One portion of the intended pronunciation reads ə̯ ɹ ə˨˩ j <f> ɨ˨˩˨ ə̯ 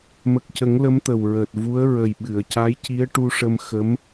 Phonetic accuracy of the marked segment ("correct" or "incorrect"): incorrect